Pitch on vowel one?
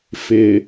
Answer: low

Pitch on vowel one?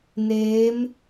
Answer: rising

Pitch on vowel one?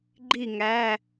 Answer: falling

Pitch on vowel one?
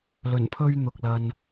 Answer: low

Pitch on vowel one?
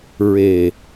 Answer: low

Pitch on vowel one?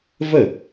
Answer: falling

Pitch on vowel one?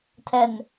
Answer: low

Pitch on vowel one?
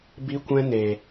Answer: high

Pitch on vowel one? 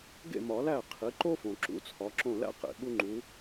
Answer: falling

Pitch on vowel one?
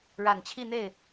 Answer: low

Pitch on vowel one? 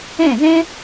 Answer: falling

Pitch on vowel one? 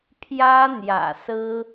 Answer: high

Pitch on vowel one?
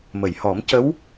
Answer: low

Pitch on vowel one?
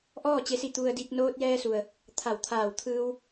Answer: falling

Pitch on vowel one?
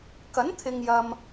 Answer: rising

